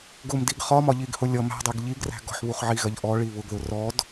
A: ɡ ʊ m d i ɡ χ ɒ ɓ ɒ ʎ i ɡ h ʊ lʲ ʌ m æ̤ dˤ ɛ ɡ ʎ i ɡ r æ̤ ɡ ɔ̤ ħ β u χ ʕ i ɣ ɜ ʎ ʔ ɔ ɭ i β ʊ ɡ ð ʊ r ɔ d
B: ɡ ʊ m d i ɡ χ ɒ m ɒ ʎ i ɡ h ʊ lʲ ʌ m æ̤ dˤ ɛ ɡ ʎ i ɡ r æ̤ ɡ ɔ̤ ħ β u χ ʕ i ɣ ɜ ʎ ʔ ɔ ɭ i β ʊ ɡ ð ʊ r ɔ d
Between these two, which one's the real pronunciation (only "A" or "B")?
B